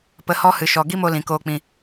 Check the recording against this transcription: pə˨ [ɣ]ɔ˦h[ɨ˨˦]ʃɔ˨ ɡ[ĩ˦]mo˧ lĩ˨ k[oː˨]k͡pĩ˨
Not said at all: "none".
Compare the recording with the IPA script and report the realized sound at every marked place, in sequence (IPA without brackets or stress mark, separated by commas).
h, ɨ˨, i˦, oː˨